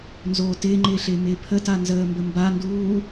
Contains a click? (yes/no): yes